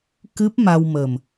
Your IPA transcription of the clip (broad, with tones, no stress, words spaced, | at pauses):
kɨ˦˥p̚ ma˧wmə˨˩m